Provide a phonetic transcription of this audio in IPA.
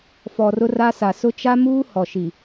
f ɔ˨ r ʊ˦ r a˦ s a˨ s ʊ˦ t͡ʃ a˦ m uː˦ h ɔ˨ ʃ i˨

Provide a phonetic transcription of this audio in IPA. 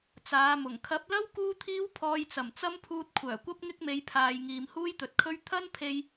t͡s aː˨˧ m ʊ˨˩ ŋ kʰ ɐ˨˥ p̚ l ɐ˥ w k uː˥ t̪ʰ iː˥ w pʰ ɔː˧ j t͡s ɐ˨˩ m t͡s ɐ˥ m pʰ uː˧ t̚ kʷʰ œː˨˩ kʷ ɐ˥ p̚ ŋ ɪ˥ k̚ m e˨˧ j pʰ aː˨ j ŋ iː˨ m h uː˥ j t̪ ɵ˨ t̚ kʰ ɵ˥ ɥ t̪ʰ ɐ˥ n pʰ e˧ j

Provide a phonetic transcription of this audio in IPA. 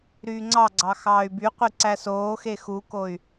ɾ yː ŋ͡ǀ ɑ ɡ͡ǀ ɑ x ɑː y̯ b y qʷ i ǀ æ s oː x e x u k o y̯

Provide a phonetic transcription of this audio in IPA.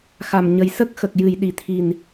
x a˨˩ m ɲ ə˨˩ j s ə˦˥ k̚ x ə˨˩ k̚ j ɨ˨˩˨ j ɗ i˨˩˨ t̪ʰ i˨˩ n

